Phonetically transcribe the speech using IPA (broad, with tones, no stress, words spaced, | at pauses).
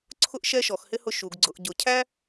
ǀʰʊ˥ʔʃɛ˥ ʃɔ˨˩˦xhɪ˥ hʊ˥ʃu˨˩˦ɡ ɡ͡ǀʊ˨˩˦ʔ ɟʊ˨˩˦cʰæ˥